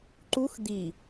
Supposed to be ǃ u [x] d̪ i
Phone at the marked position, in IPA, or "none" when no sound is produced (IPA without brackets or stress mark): x